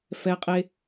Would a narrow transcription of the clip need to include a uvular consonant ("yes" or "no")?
yes